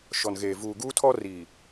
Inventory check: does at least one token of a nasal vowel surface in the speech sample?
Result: no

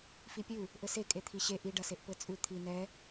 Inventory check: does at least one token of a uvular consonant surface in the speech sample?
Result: no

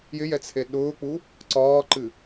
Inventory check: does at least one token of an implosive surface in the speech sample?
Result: yes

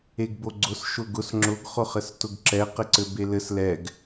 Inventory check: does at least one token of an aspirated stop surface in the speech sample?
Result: no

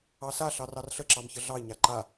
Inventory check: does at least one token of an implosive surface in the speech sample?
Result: no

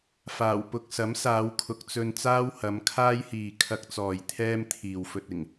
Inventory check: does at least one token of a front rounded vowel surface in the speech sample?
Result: no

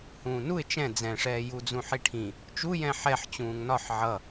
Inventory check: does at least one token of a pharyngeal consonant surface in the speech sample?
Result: yes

